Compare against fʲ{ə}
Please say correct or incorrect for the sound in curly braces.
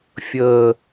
incorrect